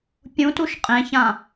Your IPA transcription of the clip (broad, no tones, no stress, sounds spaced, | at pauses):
pʲ ũ t u ʃ qʼ ẽ ç ã